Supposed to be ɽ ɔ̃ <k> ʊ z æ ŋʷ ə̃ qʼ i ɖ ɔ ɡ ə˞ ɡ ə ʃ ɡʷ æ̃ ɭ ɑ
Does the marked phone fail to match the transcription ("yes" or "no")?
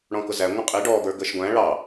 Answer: no